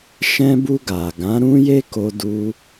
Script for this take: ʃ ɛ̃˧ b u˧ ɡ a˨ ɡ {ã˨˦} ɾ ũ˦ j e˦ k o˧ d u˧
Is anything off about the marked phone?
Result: no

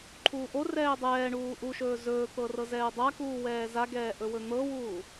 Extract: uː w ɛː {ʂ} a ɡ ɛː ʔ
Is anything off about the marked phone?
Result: yes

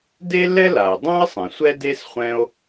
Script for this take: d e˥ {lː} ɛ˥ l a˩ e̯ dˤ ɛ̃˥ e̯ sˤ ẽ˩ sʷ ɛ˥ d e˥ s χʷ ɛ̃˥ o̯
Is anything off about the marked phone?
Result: no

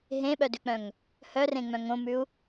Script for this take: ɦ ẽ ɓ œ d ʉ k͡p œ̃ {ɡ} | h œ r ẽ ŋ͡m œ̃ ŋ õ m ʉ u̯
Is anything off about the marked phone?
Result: yes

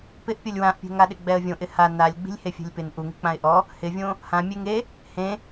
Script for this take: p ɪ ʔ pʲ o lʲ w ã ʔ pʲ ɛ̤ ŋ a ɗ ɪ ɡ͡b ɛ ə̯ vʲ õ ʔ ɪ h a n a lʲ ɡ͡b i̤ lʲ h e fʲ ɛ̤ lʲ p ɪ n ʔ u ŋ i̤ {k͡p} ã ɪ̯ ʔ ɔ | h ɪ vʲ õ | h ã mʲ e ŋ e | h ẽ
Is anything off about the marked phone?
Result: no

